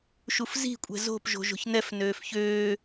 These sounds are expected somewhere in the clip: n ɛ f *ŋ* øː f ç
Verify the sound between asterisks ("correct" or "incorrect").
incorrect